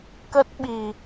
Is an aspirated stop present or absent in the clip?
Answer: absent